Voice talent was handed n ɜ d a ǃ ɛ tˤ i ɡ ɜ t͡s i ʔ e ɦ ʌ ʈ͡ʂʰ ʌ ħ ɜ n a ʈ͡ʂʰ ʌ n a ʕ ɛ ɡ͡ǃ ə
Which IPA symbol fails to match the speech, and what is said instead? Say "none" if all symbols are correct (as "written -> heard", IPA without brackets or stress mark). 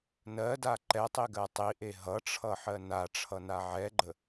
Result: t͡s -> tˤ